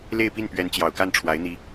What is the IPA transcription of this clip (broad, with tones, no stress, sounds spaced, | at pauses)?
l e˥˧ ɪ̯ p i˥˩ n p ɥ ɛ˧˥ n t͡ɕ j ɑ˨˩ ʊ̯ k a˥˩ n ʈ͡ʂʰ w a˧˥ ɪ̯ n̪ i˧˥